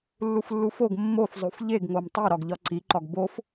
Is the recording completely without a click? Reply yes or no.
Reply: no